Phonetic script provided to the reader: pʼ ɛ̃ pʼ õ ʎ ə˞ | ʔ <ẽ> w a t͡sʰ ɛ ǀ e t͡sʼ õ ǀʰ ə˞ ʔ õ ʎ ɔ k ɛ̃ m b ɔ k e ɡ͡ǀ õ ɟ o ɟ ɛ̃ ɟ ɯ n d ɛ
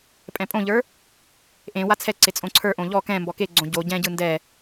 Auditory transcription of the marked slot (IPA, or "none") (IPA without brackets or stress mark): ẽ